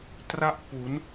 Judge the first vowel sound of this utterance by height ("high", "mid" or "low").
low